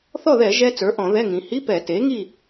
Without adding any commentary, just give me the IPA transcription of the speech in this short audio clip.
θ ɔ˥˨ ð ɛ˧˩˧ ʒ ɛ˦˥ t͡s ə˞˩˥ ʔ ɔ̃˧˩˧ ð ɛ˧˥˧ ŋ ĩ˩˧ h i˧˥˧ p ɛ˧˩˧ t e˩˥ ŋ i˥˨

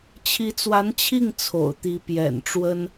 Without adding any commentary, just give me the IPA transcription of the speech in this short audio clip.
t͡ɕʰ i˧˥ t͡s w a˧˥ n t͡ɕʰ i˥˩ ŋ t͡sʰ o̰˨˩ ʊ̯ t̪ i˧˥ p j ɛ̰˨˩ n ʈ͡ʂ w ə˥ n

